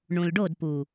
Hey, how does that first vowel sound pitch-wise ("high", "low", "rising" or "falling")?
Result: low